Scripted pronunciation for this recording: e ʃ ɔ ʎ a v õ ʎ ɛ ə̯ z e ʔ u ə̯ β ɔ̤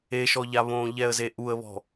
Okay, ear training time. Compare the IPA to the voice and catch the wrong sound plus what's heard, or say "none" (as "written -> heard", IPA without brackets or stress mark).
v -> β